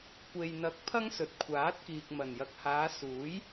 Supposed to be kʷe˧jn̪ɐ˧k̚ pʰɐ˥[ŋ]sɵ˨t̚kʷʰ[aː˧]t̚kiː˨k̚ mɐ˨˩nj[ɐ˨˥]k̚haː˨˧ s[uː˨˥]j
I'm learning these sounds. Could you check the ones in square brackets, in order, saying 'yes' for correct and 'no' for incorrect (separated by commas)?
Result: yes, no, no, yes